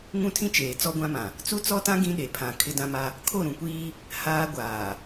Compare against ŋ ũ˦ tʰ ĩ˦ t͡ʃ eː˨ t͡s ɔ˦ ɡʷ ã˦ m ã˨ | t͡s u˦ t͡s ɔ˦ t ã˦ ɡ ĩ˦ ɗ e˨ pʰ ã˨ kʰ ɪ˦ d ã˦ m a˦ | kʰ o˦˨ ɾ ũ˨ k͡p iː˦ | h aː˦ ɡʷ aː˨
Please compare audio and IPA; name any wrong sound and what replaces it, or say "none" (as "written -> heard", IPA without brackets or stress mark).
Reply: k͡p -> kʷ